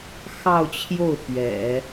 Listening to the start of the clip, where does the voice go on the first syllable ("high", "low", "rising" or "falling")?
falling